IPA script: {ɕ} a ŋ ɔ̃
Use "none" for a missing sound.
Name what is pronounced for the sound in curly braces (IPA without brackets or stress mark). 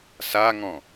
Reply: s